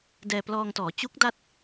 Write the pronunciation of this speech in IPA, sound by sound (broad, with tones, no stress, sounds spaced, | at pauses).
d ɛː˧ p l ɔː˧ ŋ t ɔː˩˦ t͡ɕ u˦˥ k̚ d a˦˥ t̚